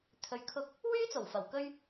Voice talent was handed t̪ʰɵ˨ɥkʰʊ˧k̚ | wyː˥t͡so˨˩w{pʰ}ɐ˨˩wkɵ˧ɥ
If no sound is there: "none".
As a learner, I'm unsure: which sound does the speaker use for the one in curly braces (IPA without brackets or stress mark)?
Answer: f